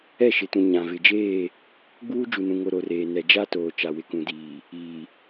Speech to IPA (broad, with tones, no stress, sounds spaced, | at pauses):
ɛ˦˨ ʃ ɪ˨ t ũ˨ ɲ ã˨ v ɪ˨ d͡ʒ eː˦˨ | ɡ͡b uː˦ d͡ʒ u˨ n ũ˨ ŋ o˨ ɾ o˨ r eː˨ n ɛ˨ d͡ʒ a˦ t oː˨ t͡ʃ a˨ w ɪ˨ k ũ˨ d iː˨ | iː˨